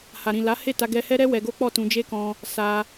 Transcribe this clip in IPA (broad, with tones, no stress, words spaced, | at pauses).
ha˨ɾĩ˨ la˨˦he˦˨ta˧ɡɛ˧ hɛ˦ɾɛ˦ wɛ˧ɡo˦k͡pɔ˦˨ tũ˧d͡ʒe˦kɔ̃˧ | sa˧